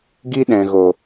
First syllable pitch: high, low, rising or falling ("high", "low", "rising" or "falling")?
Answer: high